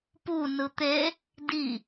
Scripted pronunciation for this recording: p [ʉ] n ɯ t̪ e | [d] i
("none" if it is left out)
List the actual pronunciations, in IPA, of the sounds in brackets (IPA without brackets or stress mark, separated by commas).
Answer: u, d